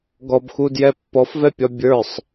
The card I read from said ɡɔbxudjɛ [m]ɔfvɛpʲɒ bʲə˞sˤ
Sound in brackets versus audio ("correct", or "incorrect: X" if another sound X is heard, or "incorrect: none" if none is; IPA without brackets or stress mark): incorrect: pː